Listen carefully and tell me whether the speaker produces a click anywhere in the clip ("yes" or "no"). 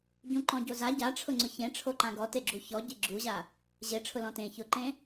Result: yes